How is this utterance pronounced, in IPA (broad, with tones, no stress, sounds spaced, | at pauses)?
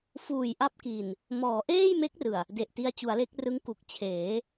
f uː˨˩ j ʔ a˦˥ p̚ k i˨˩ n | m ɔː˩˦ ʔ eː˥˩ j m e˦˥ k̚ r ɯ˨˩ a̯ | d e˨˩ ʔ t i˧ a̯ t͡ɕ u˩˦ a̯ l e˦˥ k̚ r ɯ˦˥ ŋ k u˨˩ k̚ t͡ɕʰ eː˩˦